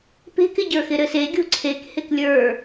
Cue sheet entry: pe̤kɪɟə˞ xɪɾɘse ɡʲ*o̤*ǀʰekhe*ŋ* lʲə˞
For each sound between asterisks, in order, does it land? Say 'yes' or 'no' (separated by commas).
yes, no